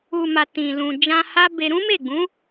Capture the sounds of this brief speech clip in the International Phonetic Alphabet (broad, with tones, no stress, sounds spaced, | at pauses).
u˨ m a˨ t ĩ˨ l ũ˨ d͡ʒ ã˧ h a˦ b e˧ ɾ ũ˦ m e˦˨ ɡ͡b ũ˨˦